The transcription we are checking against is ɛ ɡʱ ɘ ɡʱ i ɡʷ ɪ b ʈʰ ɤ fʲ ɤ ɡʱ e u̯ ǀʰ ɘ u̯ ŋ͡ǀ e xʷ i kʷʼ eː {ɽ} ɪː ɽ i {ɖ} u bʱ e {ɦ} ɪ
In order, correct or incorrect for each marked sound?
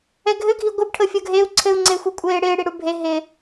correct, incorrect: ɽ, correct

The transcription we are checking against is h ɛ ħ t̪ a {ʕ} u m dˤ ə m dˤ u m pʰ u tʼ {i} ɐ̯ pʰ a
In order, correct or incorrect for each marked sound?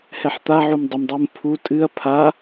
correct, incorrect: ɨ

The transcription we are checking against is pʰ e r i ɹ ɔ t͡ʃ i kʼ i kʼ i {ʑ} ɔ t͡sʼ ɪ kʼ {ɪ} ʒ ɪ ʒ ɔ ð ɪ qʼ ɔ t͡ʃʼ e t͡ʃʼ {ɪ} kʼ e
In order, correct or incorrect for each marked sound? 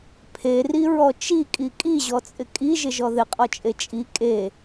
correct, incorrect: i, incorrect: i

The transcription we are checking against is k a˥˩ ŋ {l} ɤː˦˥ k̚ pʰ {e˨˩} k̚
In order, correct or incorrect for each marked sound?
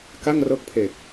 incorrect: r, correct

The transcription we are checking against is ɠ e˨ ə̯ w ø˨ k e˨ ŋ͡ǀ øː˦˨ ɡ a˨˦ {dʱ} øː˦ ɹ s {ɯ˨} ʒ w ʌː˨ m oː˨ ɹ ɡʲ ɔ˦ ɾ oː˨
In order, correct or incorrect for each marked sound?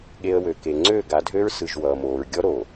correct, correct

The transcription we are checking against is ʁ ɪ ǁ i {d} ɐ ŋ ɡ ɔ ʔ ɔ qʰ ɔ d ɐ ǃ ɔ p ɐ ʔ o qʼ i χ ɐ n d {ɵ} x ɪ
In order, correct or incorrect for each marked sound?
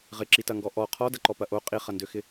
incorrect: t, incorrect: ø

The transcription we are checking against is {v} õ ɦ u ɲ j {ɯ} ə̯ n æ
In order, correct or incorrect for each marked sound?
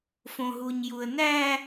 incorrect: f, incorrect: u

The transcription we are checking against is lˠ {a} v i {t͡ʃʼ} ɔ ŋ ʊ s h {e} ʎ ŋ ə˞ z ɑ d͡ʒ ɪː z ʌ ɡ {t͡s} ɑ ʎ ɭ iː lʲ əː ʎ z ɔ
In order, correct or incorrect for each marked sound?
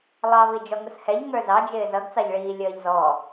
incorrect: ɑ, incorrect: d͡ʒ, incorrect: ɛ, correct

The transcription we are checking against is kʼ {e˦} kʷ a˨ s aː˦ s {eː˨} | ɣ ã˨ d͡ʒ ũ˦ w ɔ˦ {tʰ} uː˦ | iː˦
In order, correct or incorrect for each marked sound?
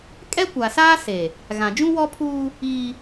incorrect: ɛ˦, incorrect: e˨, incorrect: pʰ

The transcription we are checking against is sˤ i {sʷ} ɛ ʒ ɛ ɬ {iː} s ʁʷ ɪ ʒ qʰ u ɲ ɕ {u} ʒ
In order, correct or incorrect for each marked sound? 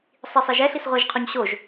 incorrect: sˤ, incorrect: i, incorrect: o

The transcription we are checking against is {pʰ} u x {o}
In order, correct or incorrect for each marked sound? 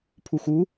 correct, incorrect: u

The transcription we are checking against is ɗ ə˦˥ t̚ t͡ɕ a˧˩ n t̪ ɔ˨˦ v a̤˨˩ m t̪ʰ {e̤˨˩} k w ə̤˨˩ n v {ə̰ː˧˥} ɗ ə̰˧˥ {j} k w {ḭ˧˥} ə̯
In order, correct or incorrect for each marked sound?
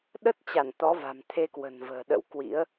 incorrect: e˧, incorrect: ə̤ː˨˩, incorrect: w, correct

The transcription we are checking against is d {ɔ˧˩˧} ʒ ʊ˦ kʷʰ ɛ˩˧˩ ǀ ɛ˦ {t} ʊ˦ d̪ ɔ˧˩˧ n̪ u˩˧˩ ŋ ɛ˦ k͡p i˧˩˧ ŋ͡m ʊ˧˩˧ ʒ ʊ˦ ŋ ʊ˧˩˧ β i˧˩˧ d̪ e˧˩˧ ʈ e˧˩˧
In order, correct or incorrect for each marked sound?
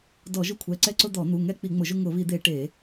correct, incorrect: ǀ

